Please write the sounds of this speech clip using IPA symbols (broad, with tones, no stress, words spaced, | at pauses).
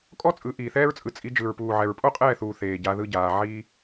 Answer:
kʼɔ˦t͡sʼɯ˨˦ ʔiː˨θɛː˦ɹt͡sʼɯ˧ t͡sʼi˧d͡ʒɯ˨ɹpuː˨ʕɛ˨ɹ pʼo˦qʼɛː˦˨θuː˨ θeː˨ɟa˧ ðɯ˦ɟaː˧ ʕi˦